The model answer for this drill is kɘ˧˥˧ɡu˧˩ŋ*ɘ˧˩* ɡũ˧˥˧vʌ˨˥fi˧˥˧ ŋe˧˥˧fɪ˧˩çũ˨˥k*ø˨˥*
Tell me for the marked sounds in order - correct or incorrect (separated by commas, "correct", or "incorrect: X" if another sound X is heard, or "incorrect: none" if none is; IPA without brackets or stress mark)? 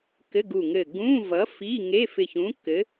correct, incorrect: ɘ˨˥